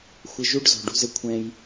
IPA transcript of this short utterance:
xʷ ɘ˧ ʒ u˦ ɖ z ɔ̤˨ ɖ ṳ˧ z ɘ˦ kʷʰ ɛ̃˧ j

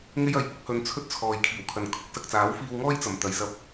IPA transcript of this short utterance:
ŋ e˥ j ɐ˨˥ j p ʊ˥ k̚ h ɵ˧ n t͡sʰ ɵ˥ t̚ t͡sʰ ɔː˨ j kʰ iː˨˩ w kʰ ɐ˨ n kʰ ʊ˥ k̚ s ɐ˨ k̚ t͡s aː˨˥ w f iː˧ w ŋ ɔː˥ j t͡s ɐ˨˩ m t̪ ɐ˨ j s ɐ˧ p̚

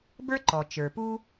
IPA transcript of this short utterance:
b ə˞˥ ǃ ɔ˩ t͡ʃ ə˞˩ p u˥

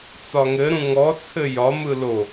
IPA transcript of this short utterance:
t͡s ɒ ŋ ɘ ɾ ũ ŋ ɔ t͡sʰ ɘ j ɒ m ɯ l o

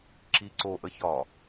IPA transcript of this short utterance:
ǁ i ǀ o ʔ ə ç ɒ

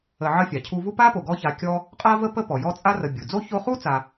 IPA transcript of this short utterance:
ə˨ ʕ ə˦ fʲ a˩ cʰ u˦ v u˦ p a˥ p o˩ ɡ ɔ˦ ç a˨ kʲ ɔ˦ | qʼ a˥ v ə˥ p ə˥ p ɔ˩ j ɔ˦ t͡sʼ a˥ r ə˨ bʲ u˩ d͡z o˥ ç o˦ χ u˥ t͡s a˨

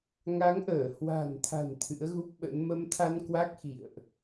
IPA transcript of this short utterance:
ŋ a˨˦ ŋ ʔ əː˧˩ h w a̤˨˩ n t̪ʰ a̤˨˩ n t̪ʰ ɨ̰˧˥ ə̯ ɣ u˦˥ p̚ ɓ ə̰˧˥ n m ə˨˦ m t̪ʰ a˧ n k w a˦˥ k̚ x ḭ˧˨ ə̯ ʔ

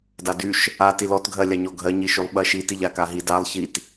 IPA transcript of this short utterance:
d a d y ʃ | a t i l ɔ t ɡʱ ɜ lʲ a ɲ ɔ ɡʱ ɜ ɲ i ʃ y lˠ ɓ ɜ ʃ i t i ʎ a k a ɦ i d a lˠ ç i t

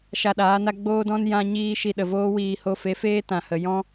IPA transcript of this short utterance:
ʃ a˧ ɗ aː˨˦ n a˦ ɡ͡b oː˦ d ɔ̃˦ n j ã˦ ɲ iː˦ ʃ i˧ ɗ ə˨ v oː˦ w iː˧ h o˧ f e˨˦ f eː˦ t ã˨ h ə˨ j ɔ̃˦

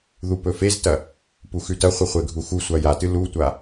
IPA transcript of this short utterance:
ð u p ɵ f e z t ɐ | p u x ʉ t ɐ χʷ ɨ χʷ e ɡʱ u x u sʷ a j a t ɨ l u tʷ a

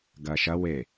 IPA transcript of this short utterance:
ɡ ɐː ʃ ɐ w e

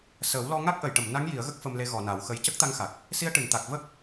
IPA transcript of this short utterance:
s əː˨˩˦ w l ɔ˧ ŋ a˦˥ k̚ ʔ ə˨˩˨ j ʈ ə˨˩˨ m n a˧˥ ŋ j i˨˩˦ ə̯ ɣ ə˦˥ k̚ f ə˧ m l e˧ ɣ ɔ˨˩˨ n a˨˩˦ w x ə˧ j c ə˦˥ k̚ t̪ a˧ ŋ x a˨˩ k̚ | s i˧ ə̯ ʈ ɨ˨˩˨ n t̪ a˨˩ k̚ v ə˦˥ k̚

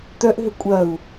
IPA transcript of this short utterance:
t̪ œ ʔ ɦ ʏ kʷʼ ɐ u̯

